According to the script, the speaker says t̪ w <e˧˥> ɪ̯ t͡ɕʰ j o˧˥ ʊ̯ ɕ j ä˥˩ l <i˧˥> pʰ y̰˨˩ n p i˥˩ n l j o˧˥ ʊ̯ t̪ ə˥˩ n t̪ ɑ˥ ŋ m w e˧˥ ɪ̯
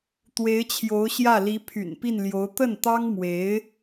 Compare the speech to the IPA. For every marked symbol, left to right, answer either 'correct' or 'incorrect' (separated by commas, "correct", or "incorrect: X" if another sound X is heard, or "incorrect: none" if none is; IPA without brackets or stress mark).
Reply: correct, correct